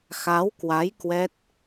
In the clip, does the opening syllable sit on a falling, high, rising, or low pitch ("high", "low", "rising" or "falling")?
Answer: rising